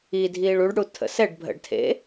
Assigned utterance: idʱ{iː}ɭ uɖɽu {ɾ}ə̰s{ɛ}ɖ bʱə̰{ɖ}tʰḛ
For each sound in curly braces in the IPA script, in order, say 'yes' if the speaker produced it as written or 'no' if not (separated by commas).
yes, no, yes, yes